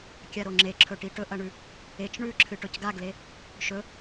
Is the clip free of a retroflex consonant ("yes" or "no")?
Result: no